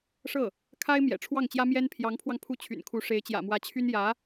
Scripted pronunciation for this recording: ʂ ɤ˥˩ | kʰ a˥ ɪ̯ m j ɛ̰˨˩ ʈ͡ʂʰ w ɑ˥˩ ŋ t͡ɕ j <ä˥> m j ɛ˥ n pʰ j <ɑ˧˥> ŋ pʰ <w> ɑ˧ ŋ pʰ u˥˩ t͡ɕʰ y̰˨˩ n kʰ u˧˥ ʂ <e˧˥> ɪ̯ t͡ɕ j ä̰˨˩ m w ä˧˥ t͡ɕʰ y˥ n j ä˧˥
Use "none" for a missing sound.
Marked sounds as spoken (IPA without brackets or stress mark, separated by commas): ä˥, ɑ˧˥, w, e˧˥